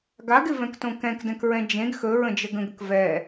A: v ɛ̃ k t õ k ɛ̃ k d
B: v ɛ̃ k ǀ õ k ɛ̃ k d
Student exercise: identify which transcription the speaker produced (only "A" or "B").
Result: A